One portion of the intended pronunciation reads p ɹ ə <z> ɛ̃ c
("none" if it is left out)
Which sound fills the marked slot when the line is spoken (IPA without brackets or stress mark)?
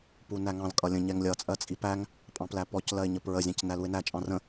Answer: zʲ